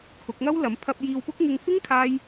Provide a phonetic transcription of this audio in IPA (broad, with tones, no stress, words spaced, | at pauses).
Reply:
kʰʊ˨˥k̚ŋɐ˥wlɐ˨˥m pʰɐ˧p̚jiː˧wpʊ˥k̚ ŋɪ˧ŋfɪ˥ŋ kʰaː˥j